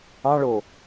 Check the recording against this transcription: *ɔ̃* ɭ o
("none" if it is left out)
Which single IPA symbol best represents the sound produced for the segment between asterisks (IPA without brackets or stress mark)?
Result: ɑ̃